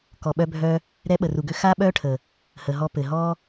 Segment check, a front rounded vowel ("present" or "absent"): present